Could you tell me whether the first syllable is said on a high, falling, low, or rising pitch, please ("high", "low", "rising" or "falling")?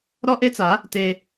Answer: high